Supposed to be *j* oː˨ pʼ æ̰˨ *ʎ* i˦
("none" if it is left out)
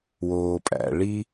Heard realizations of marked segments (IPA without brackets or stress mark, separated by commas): w, ɭ